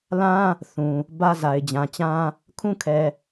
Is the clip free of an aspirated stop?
no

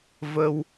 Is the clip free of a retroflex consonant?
yes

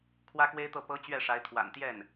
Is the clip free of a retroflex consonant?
no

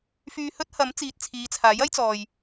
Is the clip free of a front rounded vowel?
no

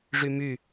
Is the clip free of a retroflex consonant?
no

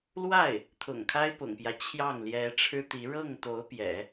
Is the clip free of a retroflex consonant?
no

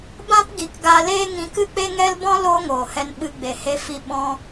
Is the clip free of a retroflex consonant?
yes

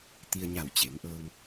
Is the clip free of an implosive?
yes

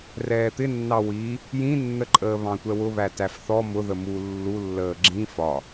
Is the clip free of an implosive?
yes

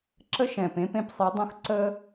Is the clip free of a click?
no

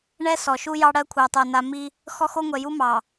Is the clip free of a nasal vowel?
yes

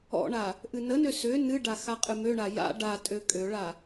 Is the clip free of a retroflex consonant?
no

